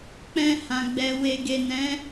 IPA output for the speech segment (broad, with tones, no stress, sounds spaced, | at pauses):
k͡p ɛ̃˧ h ã˨ ɡ͡b ɛ˨ w e˨ ɡ e˨ n ɛ̃˨˦